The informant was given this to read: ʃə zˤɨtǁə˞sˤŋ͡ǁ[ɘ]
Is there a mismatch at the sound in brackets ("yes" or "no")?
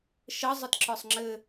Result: no